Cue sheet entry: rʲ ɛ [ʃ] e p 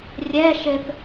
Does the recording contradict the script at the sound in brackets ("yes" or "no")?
no